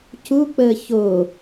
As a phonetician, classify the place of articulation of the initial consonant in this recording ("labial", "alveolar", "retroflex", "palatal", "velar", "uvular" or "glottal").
palatal